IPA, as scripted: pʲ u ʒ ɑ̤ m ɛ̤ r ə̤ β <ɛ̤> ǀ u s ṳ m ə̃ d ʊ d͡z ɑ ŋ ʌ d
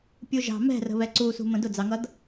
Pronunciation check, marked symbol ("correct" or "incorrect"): incorrect